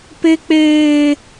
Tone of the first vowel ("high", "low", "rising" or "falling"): high